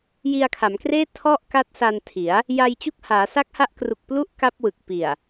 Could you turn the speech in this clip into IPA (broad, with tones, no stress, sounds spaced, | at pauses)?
j i˧ a̯ kʰ a˩˦ m k r eː˥˩ tʰ ɔ˥˩ ʔ k a˦˥ t̚ s a˧ n tʰ i˩˦ a̯ | j a˧ j t͡ɕ u˥˩ k̚ h aː˩˦ s a˦˥ k̚ h a˦˥ ʔ k r u˨˩ k̚ p l u˦˥ ʔ k a˦˥ p̚ w ɯ˨˩ k̚ p i˨˩ a̯